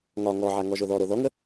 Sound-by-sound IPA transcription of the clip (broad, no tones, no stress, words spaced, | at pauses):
ŋɒ ŋɔʕa ŋɔʒoðɔɾo ðɔŋə